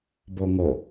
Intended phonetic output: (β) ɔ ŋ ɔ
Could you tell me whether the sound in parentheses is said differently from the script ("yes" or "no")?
yes